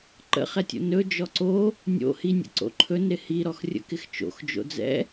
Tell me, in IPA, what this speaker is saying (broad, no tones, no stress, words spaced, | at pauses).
ǃə̰χɛtʲo̰ nɵ d͡ʒɔǀo | nʲo̰ hinʲə̰ ǀo̰ǃʰɵn ɾɪhiɾɔx rʲə̰kɪxt͡ʃo̰x d͡ʒo̰d͡zɛ̰